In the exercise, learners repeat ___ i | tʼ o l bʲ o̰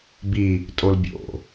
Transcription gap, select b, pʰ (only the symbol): b